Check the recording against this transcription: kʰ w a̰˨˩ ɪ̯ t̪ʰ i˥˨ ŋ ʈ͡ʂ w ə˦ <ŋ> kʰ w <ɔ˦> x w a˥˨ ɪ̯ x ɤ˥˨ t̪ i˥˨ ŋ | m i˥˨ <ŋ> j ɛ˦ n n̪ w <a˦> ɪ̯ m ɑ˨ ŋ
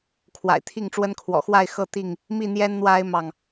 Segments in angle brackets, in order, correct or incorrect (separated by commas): incorrect, incorrect, incorrect, correct